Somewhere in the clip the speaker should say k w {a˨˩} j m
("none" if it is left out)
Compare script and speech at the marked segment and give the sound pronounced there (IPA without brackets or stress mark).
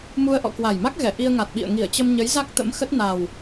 a˨˩